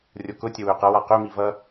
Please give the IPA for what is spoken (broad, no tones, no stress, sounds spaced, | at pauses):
rʲ o k ʊ tʲ ə w ø q ʌ w a q ø m i v ʌ